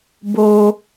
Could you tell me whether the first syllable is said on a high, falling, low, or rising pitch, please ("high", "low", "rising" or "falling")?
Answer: high